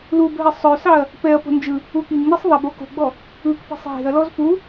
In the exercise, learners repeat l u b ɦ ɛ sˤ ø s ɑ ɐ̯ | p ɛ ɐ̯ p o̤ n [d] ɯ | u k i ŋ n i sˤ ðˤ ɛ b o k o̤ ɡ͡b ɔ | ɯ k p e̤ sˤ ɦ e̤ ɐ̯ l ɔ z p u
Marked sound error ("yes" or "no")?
yes